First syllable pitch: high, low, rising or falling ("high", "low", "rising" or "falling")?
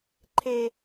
high